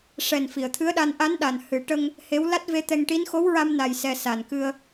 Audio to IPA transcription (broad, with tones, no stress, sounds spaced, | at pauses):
ʂ ɛ˨˩ n f i˨˩˨ ə̯ t̪ʰ ɨ˧˥ ə̯ ɗ a˧ n ʔ a˧˥ n ɗ a˨˩ n h ɨ˨˩˦ ʈ ə˧ ŋ | h e˧˥ w l a˦˥ t̚ v e˧˥ t̪ ɛ˧ ŋ ʈ i˧˥ n x o˧˥ w ɹ a˧ m n a˨˩ j s ɛ˨˩ s a˨˩ n k ɨ˧ ə̯